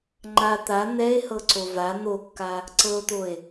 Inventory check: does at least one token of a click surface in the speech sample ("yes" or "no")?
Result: yes